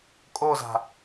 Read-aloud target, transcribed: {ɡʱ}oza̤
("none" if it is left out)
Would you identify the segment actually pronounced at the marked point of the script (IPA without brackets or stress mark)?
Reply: kʼ